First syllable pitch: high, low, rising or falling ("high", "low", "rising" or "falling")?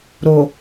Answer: low